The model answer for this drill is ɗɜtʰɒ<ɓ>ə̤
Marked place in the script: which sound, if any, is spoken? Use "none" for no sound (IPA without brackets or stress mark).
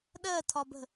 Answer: b